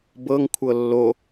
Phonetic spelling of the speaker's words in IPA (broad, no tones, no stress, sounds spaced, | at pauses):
b ɤ ŋ kʷʰ ɤ lː o